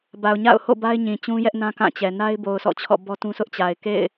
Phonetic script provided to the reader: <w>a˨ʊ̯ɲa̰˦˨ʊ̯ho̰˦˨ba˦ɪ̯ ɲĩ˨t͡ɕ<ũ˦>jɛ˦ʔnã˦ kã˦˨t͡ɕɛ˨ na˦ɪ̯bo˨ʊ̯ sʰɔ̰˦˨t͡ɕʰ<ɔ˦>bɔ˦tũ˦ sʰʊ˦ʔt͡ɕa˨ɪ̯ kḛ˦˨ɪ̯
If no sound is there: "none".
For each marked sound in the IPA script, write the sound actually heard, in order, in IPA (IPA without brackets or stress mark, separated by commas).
b, ũ˦, ɔ̰˦˨